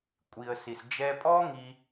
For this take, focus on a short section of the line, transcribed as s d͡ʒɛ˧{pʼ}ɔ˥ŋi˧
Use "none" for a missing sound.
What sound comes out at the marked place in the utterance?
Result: pʼ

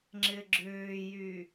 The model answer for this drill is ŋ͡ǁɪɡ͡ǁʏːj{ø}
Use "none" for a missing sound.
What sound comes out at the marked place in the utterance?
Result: y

